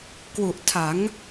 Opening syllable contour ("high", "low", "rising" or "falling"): low